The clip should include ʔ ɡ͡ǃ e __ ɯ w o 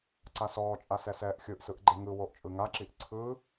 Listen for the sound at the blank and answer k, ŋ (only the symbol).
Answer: ŋ